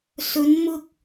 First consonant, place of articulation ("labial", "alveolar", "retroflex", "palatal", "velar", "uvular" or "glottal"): alveolar